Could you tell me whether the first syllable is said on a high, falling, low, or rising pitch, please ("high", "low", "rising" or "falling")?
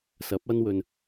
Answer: rising